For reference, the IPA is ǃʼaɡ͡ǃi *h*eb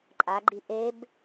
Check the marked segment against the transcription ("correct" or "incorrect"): incorrect